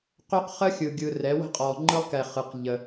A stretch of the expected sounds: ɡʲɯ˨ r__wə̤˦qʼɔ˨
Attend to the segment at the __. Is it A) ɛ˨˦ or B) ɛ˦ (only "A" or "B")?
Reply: A